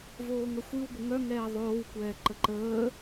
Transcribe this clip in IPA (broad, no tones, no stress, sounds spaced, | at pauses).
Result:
v oː ŋ ə xʷ ɨ w ɡʷ ə ŋ œ ŋ ɛː ðˤ oː w kʷ ɛː ǃ ə ǃ əː